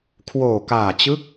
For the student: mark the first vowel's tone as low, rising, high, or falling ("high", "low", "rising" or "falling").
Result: low